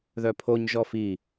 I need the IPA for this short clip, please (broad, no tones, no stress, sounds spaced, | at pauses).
ð œ pʰ o ɲ ʒ ɔ f i